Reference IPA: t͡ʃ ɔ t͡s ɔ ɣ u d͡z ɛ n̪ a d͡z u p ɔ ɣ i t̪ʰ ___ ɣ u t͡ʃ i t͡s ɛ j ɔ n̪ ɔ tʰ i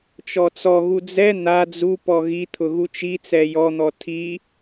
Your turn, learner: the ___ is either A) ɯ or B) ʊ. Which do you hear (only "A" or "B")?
B